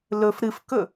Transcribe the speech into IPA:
lɵf ɾɨfkɵ

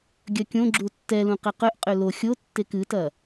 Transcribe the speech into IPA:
ɡʲɐkʲõɡ͡ǁu tːɛlũ qɛqœʔqʼø lo xʲo tːekɨtɐ

